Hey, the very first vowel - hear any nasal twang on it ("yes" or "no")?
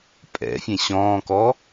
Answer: no